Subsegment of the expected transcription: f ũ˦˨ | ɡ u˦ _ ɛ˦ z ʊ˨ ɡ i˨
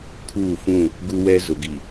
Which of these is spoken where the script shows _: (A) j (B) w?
B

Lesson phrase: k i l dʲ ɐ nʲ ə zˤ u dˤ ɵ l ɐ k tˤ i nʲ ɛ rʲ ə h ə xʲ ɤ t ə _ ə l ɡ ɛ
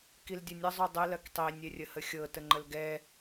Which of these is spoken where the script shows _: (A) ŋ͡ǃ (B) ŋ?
A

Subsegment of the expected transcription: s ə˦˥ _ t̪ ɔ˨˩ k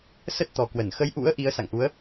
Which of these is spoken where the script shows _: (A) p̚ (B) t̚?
B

